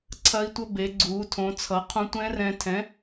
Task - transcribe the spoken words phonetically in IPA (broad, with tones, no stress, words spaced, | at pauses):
ǀʰɐː˧i̯tʷʌ˧ be˩˧ɡ͡ǀuː˩˧tʰõ˩˧t͡sʰʌ˩˧ qʰũ˧tʷɛ̃˦˥ rɛ̃˧tʰɛ̃˨˥